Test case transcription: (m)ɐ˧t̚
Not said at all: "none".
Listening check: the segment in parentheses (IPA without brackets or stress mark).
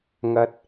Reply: ŋ